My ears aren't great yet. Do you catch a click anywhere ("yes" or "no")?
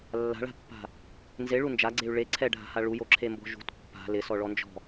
yes